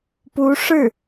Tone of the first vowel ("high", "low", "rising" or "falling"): rising